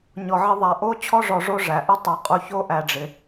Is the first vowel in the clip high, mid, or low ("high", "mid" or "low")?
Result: mid